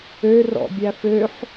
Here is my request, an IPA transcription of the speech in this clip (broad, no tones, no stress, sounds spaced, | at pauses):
ø r ɔ̰ bʲ æ f ø ħ